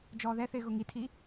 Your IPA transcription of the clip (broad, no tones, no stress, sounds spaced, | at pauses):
d͡ʒ ɔː ð ɛ θ ɪː ɣ ʊ ŋ i tʰ i